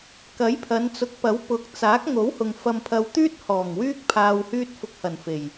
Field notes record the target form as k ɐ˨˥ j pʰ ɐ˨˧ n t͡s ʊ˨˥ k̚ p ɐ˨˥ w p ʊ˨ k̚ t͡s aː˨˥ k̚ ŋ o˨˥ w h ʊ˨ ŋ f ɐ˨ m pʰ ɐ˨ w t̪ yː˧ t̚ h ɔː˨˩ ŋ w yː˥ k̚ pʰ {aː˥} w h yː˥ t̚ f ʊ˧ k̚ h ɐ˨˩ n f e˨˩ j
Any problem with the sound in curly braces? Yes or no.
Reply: yes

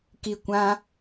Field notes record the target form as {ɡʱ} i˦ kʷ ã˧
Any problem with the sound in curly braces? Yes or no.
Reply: yes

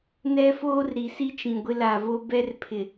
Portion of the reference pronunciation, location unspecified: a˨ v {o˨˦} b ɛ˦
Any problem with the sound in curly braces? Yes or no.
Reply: yes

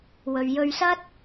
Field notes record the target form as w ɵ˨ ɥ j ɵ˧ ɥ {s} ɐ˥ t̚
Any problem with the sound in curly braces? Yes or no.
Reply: no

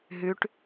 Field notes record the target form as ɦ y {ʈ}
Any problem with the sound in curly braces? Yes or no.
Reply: no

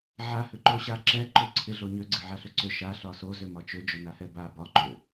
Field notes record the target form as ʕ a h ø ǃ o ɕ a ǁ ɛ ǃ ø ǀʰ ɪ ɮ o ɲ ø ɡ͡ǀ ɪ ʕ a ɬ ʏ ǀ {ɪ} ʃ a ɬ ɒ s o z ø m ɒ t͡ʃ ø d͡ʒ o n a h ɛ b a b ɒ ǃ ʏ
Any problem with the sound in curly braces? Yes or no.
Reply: yes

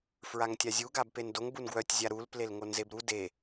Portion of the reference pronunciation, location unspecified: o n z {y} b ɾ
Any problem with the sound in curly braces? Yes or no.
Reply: yes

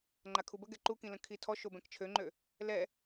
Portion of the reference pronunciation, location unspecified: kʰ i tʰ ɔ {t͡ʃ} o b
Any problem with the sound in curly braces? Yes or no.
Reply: yes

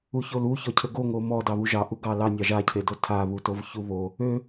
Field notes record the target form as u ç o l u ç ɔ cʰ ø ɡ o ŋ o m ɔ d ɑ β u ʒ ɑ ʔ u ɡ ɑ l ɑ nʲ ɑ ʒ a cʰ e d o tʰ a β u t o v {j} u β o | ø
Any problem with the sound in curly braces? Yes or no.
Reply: yes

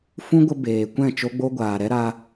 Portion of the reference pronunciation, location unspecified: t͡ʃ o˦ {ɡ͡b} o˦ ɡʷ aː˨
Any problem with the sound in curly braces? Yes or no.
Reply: no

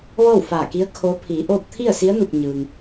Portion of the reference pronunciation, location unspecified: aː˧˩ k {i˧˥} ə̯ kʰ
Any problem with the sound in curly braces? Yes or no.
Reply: no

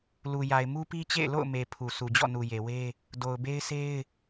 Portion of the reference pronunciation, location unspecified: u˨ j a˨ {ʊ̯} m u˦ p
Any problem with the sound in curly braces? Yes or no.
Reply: yes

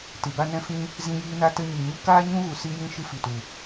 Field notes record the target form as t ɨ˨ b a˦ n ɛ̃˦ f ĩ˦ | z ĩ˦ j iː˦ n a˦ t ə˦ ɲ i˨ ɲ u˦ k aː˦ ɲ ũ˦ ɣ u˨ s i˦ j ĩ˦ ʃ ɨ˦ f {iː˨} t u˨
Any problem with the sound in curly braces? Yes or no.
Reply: yes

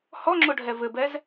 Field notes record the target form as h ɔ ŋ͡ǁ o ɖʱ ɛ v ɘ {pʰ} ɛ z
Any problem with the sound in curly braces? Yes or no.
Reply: yes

